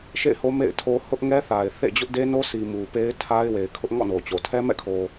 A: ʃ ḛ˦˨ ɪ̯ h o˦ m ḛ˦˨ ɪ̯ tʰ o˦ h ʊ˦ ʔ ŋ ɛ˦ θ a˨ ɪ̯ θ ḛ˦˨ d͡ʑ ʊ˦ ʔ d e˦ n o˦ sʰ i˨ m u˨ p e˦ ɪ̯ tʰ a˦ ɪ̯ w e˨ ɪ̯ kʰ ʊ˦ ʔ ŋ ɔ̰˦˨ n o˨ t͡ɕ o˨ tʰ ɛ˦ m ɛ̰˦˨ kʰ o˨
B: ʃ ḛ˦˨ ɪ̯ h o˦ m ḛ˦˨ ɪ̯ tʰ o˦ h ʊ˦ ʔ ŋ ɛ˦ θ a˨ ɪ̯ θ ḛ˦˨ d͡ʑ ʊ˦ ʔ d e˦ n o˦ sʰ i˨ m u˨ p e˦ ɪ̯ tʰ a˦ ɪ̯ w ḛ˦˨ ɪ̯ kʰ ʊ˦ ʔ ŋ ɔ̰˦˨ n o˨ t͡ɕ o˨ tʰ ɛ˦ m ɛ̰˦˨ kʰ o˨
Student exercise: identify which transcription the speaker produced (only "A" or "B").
A